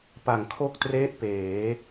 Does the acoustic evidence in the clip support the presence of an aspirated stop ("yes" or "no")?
yes